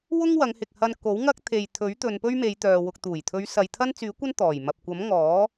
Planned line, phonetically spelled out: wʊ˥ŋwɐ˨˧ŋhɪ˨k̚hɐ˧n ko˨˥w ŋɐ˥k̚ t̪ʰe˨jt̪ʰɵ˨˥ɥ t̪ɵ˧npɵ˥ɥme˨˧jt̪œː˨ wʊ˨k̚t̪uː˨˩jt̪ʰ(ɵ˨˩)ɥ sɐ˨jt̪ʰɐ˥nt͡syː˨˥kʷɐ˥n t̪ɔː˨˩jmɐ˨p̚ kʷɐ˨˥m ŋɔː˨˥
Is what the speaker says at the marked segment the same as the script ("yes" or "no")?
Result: no